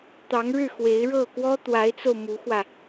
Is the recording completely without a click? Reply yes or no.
yes